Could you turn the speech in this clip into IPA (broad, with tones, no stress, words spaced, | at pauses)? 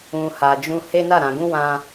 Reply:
ũ˨ ha˨d͡ʒũ˧ he˦na˦˨ ɾã˨ɡũ˧ wã˧